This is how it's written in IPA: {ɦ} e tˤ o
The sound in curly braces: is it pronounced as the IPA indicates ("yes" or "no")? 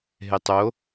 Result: yes